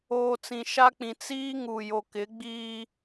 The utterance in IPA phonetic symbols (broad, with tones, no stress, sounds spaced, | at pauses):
oː˨ t͡s ĩ˨ ʃ a˦ k͡p ĩ˨ t͡s iː˦ ŋ u˨ j o˨ k ɪ˨˦ ɡ͡b iː˦